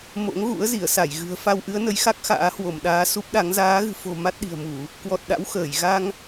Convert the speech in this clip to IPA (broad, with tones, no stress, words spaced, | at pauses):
mo̰˧˥ŋɣṵ˧˥ə̯ zi˧˩ə̯sa˧˩jɣɨ̤˨˩ə̯ fa˧wʔɨ˨˦ə̯nə˨˦jxa˦˥k̚ xa̰ː˧˥hwo˧˩mɗaː˨˦ su˦˥p̚ɗa˨˦ŋ zaː˨˦ɣɨ̤˨˩fo̤˨˩ ma˦˥t̚ɗi̤˨˩ə̯mu˧˩˨ | kwɔ˨˩t̚ɗa̰˧˥w xəː˧˩j ɣa˧ŋ